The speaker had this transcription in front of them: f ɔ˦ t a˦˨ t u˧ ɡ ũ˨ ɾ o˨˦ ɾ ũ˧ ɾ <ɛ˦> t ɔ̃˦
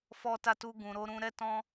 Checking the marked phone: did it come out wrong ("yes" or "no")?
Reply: no